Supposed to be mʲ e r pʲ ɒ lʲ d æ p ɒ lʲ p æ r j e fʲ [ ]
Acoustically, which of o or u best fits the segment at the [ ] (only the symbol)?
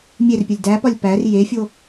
o